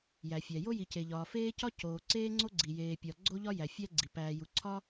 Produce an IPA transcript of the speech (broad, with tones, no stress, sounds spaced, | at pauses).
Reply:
j æ˩ fʲ æ˩ j o˥ j i˩ c e˩ ʎ ɒː˩ f eː˥ c ɒ˥ c oː˩ ǀ eː˥ ŋ͡ǀ o˥ ɡ͡ǀ i˩ j eː˩ pʲ ɒ˩ ɡ͡ǀ o˥ ʎ ɒ˥ j æ˩ fʲ æ˥ ɡ͡ǀ i˩ p æː˩ j u˩ ǀʰ ɒ˥